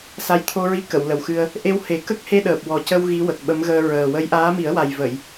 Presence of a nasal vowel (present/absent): absent